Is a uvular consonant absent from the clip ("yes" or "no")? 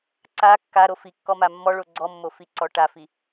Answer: yes